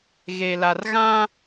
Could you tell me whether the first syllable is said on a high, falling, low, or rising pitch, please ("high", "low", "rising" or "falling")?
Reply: low